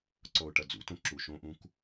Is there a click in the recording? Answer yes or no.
yes